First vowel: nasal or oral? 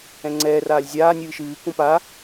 nasal